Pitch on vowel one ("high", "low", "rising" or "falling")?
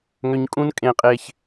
high